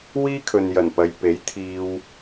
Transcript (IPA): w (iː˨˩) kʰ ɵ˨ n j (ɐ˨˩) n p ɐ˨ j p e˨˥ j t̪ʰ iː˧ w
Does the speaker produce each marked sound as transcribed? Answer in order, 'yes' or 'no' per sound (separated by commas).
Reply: no, yes